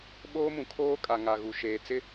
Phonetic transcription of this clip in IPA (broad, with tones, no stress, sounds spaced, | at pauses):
ɓ oː˦ m ũ˨ kʰ oː˦ kʼ a˨ ŋ a˨ ɣ u˨ ʃ eː˨ t͡s ɪ˦